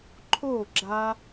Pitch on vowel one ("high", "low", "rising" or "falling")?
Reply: falling